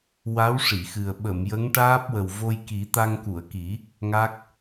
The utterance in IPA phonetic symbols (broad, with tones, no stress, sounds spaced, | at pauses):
w a˧˥ w ʂ i˨˩˨ x ɨ˨˩ ə̯ ɓ ə˨˩˨ m j ə˧˥ ŋ ʈ aː˦˥ p̚ w ə˨˩ w v o˧ j k i˨˩˦ t̪ a˧ ŋ k u˨˩˨ ə̯ k i˨˩˦ | ŋ a˦˥ k̚